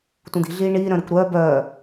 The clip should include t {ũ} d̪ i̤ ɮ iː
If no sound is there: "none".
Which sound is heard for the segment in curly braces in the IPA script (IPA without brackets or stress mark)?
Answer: ũ